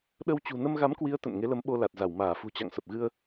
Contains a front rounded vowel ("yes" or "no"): no